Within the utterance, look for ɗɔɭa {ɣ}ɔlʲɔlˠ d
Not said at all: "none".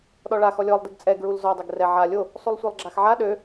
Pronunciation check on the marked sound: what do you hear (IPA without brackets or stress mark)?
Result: x